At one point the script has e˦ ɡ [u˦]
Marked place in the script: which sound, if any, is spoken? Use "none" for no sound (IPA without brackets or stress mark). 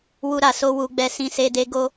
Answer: o˦